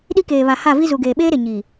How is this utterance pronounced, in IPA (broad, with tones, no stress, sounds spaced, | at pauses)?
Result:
ɗ i˦ k eː˨ β a˨ h a˦˨ v i˦ z u˨ ɡ eː˨ ɓ eː˦ ɾ e˨ ɲ i˨